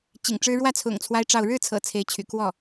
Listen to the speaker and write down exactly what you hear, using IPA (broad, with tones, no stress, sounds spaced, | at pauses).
t͡ɕ ḭ˨˩ ŋ ʈ͡ʂ ɻ̩˥ ɻ w ä˥˩ t͡sʰ ʊ̰˨˩ ŋ t͡sʰ w a˥ ɪ̯ ʈ͡ʂ ɑ˥˧ ʊ̯ ɻ ɻ̩˥˩ t͡sʰ ɤ̰˨˩ t͡sʰ e˧˥ ɪ̯ t͡ɕʰ y̰˨˩ k w ɔ˥˩